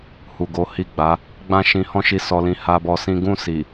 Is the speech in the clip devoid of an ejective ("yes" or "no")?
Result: yes